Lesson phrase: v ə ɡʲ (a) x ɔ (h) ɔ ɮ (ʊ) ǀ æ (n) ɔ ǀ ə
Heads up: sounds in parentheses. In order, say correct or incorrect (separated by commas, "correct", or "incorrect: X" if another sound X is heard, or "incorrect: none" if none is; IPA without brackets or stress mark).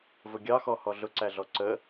incorrect: ɑ, correct, correct, incorrect: ɮ